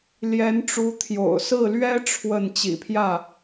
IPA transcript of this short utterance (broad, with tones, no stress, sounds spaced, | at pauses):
l j ɛ˧˥ n ʈ͡ʂ u˧˥ t̪ʰ j o̰˨˩ ʊ̯ s ɹ̩˥˩ l ɥ ɛ˥ ʈ͡ʂʰ w ə˥˩ n t͡ɕ ḭ˨˩ pʰ j ä˥˩